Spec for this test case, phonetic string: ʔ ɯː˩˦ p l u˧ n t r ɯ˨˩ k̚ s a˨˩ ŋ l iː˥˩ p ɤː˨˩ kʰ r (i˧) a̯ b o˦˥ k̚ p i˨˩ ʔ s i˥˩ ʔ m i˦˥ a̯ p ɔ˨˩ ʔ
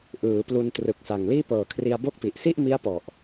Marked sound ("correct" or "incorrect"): correct